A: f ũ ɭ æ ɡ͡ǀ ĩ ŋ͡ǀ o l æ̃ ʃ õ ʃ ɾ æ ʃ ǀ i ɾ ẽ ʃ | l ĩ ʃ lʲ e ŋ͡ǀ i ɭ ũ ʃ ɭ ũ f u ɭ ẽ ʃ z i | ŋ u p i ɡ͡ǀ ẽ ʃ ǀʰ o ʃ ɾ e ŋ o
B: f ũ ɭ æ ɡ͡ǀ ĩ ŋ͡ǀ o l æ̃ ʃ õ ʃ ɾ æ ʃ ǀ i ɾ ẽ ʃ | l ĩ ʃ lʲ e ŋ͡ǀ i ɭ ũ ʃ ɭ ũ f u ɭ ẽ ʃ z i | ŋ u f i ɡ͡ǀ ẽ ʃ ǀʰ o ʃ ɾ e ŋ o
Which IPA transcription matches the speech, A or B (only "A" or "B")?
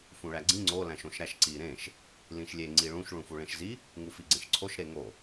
B